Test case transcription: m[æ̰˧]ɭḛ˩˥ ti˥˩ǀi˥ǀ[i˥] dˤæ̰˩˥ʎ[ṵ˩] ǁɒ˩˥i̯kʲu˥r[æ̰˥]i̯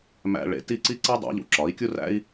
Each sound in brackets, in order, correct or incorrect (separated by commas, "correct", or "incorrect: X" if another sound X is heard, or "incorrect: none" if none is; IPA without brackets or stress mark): correct, correct, correct, correct